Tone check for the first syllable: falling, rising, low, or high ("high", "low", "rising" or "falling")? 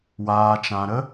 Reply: low